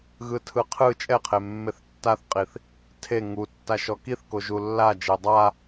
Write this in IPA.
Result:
ɣ ɯ tʰ ɯ qʰ ɯ t͡ʃʼ ɛ qʰ e mː e θ tː a θ qʼ i θ | tʰ e ŋ u tː a ʃ ɔ k i θ k o ʒ u lː a d͡ʒ e dˤ a

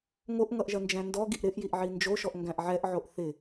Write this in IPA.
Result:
ŋ o ʔ ŋ ʌ ʔ ʒ ɐ n d͡ʒ æ̃ n d ɔ ɡ i ʔ ɾ ɪ ʔ j i ʔ ʕ i n d͡ʒ o ʃ ɔ ʔ ŋ ɡ æ̃ ʔ ʕ ɛ ʔ ʕ o ʔ θ ɪ

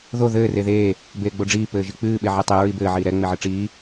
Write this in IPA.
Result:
ð o ð ɘː r e ð eː | b eː ɡ͡b o ɖ͡ʐ iː p ɘː ʒ i k͡p ɨː ɓ e ʕ ɛ tˤ ɛ ɹ i b ɘː ʕ iː ɾ ɛ ŋ͡m e ʕ ɘ ʈ͡ʂ iː

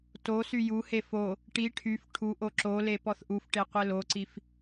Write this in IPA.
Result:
t o s y j u h e f o | ʈ i ʈʰ y f ʈʰ u ʔ o ǁ o l e p ɔ θ ʔ u f ʈ e qʷ e l o ǀ i f

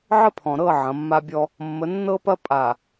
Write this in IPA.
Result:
ʕ ə˦ pʰ ɔ̃˨ ɾ ɤ˦˨ ʕ ɐ̃˨˦ mː a˦ bʲ ɔ˦ | mː ə˨˦ nː ɤ˦ p ɐ˦ pʼ a˨

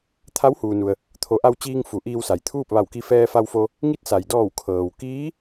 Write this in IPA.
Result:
t̪ʰ a˧˥ w h uː˩ n u˩ ə̯ | t̪ʰ o˩˧ ʔ a˧ w t͡ɕ iː˧ ŋ f u˩˧ ʔ iː˧ w s a˩ j t̪ʰ uː˥˨ p̚ ʋ a˧˩ w k i˧ f ɛː˧ f a˧ w f o˧ | ŋ i˧˥ t̚ s a˩ j d ɔː˧˩ w kʰ ɤː˩ w k iː˧˥

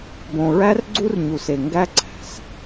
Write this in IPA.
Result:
b õ˧ ɹ æ˥ r ɡ͡ǀ u˥ r ɲ u˧ s e˧ ŋ ɡ æ˥ ǀ æ̤˩ s

